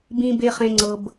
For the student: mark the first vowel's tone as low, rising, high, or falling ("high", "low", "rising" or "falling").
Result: low